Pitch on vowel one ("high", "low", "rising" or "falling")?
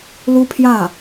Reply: high